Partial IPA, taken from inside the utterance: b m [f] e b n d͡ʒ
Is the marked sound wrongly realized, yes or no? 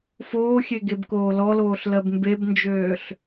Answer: yes